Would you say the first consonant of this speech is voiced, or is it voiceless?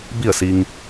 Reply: voiced